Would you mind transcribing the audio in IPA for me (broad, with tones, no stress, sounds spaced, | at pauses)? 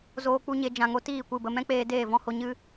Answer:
z oː˧ k͡p u˧ ɲ e˧ d͡ʒ ã˨ ŋ o˧ t iː˦˨ kʷ ɨ˦˨ b ə˧ m ɛ̃˦ k͡p eː˧ d eː˦˨ v ɔ̃˦ h o˧ ɲ ɨ˦